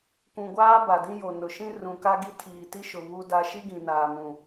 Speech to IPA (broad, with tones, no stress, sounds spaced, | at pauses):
kʷ ũ˨ ɡʷ aː˦ b a˨ d ĩ˦ j o˨ n ʊ˨ ʃ ĩ˦ r ũ˨ k a˦ ɡ i˦ tʰ iː˨ t i˦ ʃ ʊ˨ β u˦ d a˦ ʃ i˦ ɡ ĩ˨ n aː˨ m ũ˨